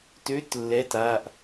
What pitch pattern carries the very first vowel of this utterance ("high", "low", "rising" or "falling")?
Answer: rising